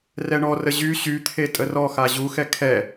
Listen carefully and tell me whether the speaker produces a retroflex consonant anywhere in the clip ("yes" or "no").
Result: yes